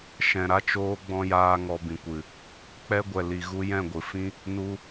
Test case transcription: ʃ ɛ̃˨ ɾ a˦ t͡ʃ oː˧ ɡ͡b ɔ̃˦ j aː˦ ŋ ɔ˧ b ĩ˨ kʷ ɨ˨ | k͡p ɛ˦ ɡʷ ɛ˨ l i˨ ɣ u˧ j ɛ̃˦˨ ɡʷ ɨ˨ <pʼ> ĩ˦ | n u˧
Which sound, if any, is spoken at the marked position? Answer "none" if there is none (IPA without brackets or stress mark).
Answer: f